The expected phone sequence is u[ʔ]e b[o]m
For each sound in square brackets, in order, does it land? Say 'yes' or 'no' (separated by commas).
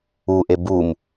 yes, no